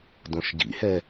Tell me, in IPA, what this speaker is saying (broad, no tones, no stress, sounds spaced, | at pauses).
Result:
d õ ʃ ɟ ḭ h ɛ